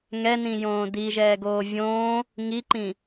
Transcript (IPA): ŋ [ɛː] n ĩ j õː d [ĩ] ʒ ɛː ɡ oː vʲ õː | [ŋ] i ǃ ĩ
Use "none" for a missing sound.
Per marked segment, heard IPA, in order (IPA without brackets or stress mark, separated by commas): ɛ, i, ŋ